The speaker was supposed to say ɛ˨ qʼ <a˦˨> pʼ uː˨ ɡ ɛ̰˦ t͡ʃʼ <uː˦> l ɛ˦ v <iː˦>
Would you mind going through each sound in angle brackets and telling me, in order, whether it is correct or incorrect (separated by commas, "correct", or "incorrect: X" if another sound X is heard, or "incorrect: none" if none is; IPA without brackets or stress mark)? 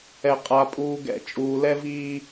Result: incorrect: a˨, incorrect: uː˨, correct